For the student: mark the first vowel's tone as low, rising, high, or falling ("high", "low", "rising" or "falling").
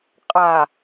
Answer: low